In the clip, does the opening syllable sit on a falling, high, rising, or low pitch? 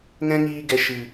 high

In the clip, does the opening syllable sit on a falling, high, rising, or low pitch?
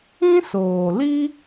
high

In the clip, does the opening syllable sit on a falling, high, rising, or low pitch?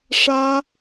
high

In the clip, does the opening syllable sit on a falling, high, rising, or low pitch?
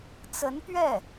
rising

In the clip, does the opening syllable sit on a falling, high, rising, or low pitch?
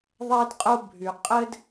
high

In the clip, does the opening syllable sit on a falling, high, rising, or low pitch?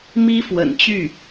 high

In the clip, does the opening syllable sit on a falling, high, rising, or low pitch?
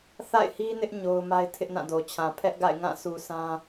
falling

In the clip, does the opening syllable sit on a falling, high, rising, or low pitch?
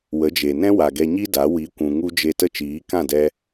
rising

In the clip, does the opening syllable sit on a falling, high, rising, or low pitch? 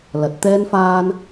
rising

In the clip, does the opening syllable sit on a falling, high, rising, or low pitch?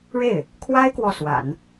falling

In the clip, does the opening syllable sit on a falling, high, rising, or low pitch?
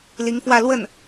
rising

